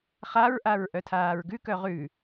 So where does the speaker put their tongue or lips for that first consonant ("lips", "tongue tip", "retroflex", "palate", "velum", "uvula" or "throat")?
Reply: uvula